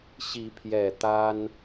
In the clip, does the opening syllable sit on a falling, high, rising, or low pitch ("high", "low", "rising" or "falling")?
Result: rising